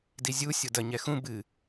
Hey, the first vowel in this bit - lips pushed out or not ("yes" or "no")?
no